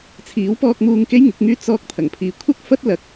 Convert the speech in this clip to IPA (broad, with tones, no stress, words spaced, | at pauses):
t͡sʰiː˨˥wpɔː˧k̚muː˧ŋ ke˥jŋɪ˨˥k̚ŋyː˥ t͡sɔː˧k̚ t̪ʰɐ˨˩ŋpʰiː˨˧kʷʰɐ˥k̚ fɐ˥t̚ lɐ˨k̚